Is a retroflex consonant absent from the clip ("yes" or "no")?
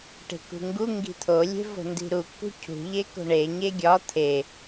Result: no